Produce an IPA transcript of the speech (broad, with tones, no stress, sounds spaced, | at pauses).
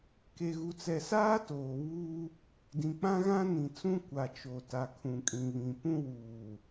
k e˨ ɣ u˨ t͡s ɛ˨ s aː˦ t oː˨ β uː˦ | d ĩ˨ k͡p ã˦ ɣ ã˦ n ĩ˨ t͡s ũ˦ kʷ a˨ t͡ʃ o˨ t a˨ kʰ ũ˨ kʼ ĩ˨ β ĩ˨ p ũ˦ w uː˨